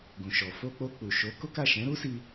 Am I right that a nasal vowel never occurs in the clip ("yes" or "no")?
no